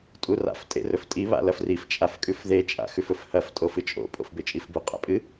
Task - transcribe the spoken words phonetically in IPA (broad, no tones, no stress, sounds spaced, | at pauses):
tʼ u r a̰ f tʼ ḛ r ɵ f tʼ i β a̰ l ɐ f r i f t͡ʃʼ a f kʼ ʉ f ð e t͡ʃʼ a̰ x ʉ f ɵ f h ɐ f tʼ o f ɨ t͡ʃʼ o̰ pʼ o̰ f b e t͡ʃʼ i f b u qʼ a̰ pʼ ɨ